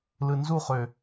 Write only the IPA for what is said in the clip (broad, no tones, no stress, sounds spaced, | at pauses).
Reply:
l ɯ n z u χ ø